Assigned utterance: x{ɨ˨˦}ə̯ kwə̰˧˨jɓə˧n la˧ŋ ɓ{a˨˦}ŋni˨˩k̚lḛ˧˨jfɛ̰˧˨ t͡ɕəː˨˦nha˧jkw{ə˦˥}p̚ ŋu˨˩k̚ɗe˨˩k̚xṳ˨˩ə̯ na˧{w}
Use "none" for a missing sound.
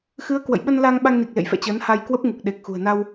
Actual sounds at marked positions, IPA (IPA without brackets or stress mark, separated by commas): ɨ˨˦, a˧, ə˦˥, w